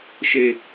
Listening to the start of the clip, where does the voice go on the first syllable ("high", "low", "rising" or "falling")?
low